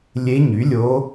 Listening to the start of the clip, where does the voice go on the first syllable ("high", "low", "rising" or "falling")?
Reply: rising